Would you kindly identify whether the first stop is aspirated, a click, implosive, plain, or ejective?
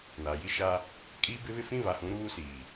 ejective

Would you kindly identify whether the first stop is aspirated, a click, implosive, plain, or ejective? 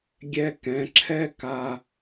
plain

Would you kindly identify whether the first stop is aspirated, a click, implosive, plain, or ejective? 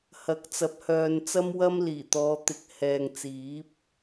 plain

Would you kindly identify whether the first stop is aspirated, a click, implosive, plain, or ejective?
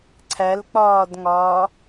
click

